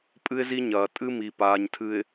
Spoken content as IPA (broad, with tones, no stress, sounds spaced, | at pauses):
pʼ ɨ˦ ɪ̯ z i˦ ɲ ɐː˨ tʼ ɨ˦ m i˨ p aː˨ ɲ tʰ ɨ˨ ɪ̯